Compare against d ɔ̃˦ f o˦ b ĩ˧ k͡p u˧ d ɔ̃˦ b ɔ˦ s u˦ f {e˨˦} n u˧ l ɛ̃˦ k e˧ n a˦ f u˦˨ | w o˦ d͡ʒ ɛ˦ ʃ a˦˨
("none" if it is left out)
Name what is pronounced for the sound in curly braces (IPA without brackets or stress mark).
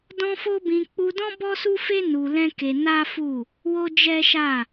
e˦